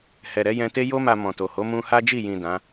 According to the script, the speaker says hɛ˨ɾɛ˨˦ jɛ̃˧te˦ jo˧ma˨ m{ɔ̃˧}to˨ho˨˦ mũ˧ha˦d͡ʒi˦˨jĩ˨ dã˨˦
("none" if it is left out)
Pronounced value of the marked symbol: ɔ̃˨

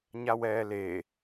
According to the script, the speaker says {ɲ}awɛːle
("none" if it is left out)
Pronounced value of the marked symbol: ɲ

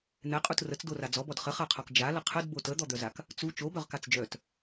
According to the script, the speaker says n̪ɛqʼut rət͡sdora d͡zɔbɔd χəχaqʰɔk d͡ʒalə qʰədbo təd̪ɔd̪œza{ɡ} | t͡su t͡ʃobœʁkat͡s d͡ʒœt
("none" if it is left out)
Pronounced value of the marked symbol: k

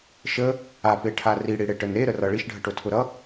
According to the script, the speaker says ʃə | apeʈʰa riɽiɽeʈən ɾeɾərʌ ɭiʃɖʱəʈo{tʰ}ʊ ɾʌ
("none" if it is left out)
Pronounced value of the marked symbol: tʰ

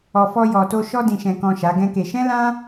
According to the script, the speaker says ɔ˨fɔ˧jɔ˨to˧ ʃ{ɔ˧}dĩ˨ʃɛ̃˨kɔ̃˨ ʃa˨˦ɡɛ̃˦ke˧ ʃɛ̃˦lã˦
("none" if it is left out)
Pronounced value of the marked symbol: ɔ˧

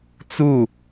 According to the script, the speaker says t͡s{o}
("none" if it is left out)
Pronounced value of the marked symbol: u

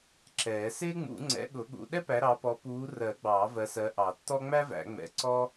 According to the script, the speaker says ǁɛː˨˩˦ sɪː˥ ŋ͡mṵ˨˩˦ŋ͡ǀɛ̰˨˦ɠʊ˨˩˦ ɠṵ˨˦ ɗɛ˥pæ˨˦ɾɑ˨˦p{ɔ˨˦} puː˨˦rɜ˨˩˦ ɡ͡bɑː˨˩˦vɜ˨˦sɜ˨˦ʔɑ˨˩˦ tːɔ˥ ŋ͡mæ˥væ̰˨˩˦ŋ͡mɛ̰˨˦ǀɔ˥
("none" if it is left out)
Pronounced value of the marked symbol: ɔ˨˦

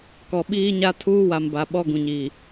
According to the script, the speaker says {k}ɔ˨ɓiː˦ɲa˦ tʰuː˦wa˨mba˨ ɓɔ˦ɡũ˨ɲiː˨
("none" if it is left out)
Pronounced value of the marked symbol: k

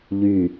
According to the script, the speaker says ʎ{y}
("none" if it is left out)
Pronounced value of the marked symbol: y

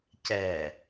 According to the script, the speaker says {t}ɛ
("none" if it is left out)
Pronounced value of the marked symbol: c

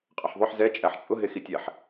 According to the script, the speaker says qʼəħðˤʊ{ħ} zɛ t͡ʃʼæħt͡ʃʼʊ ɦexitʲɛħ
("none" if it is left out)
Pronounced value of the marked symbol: ħ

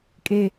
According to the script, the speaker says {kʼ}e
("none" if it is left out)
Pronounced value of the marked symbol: kʼ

